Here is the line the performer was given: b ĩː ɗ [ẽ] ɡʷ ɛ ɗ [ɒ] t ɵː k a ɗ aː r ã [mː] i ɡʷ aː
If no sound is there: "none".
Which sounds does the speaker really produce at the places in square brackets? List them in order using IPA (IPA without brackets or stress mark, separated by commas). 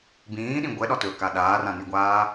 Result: ĩ, ɒ, n